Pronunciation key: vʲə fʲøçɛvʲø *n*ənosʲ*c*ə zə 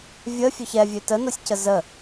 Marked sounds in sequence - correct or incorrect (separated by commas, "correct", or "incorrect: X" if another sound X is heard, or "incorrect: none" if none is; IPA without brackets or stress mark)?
incorrect: t, correct